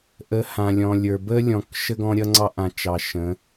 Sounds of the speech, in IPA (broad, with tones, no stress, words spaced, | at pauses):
ʔə˨˦hã˨lʲɔ̃˨lʲə˞˨ bə˦lʲɔ̃˨k ʃə˦ɡɔ̃˦ɾʲʌ˦ŋ͡ǀɑ˦ ʔã˨t͡ʃɑ˨ ʃə̃˨˦